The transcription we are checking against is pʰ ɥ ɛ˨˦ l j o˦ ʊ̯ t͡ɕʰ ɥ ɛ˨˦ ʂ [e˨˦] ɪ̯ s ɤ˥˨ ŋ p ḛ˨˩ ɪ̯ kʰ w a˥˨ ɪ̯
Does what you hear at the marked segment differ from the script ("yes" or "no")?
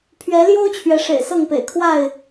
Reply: yes